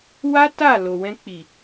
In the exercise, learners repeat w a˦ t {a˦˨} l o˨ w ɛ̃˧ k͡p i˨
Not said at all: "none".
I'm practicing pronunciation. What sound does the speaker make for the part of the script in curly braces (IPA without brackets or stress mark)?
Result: a˦˨